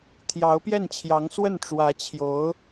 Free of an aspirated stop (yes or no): no